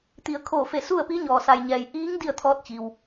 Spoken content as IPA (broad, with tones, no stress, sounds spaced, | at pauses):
t̪ i˩ ə̯ kʰ oː˧˩ f e˧˩ s u˥˨ ə̯ p i˧˥ ɲ ɔː˩ s a˩ j ɲ ɛː˩ j ʔ iː˧˥ ŋ d i˥˨ ə̯ t̪ʰ ɔː˧˥ t̚ t͡ɕ i˩ w